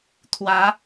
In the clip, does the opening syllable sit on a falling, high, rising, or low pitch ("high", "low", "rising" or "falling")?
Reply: rising